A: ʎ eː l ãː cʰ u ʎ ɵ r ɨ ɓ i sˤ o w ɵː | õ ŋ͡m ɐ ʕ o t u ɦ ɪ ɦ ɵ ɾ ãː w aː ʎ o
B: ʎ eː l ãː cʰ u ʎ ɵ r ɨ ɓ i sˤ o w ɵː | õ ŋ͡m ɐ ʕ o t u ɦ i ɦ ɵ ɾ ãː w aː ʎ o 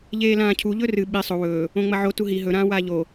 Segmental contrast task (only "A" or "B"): B